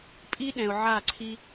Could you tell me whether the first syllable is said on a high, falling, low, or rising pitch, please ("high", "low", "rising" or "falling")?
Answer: high